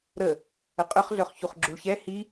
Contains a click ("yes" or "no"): yes